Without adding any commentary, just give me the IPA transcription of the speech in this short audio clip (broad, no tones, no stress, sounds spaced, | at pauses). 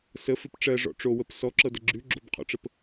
s ə f ɪ p ʈ͡ʂ ɜ ʐ ɔ̰ ʈ͡ʂ o w ə p s ɔ ǁ ɤ d ə ɡ͡ǁ ʉ ɡ͡ǁ o b qʰ ɔ̰ ʈ͡ʂ ə p